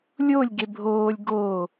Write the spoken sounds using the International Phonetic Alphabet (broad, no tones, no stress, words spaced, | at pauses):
lʲolʲ ɡebʱoːlʲ ɡo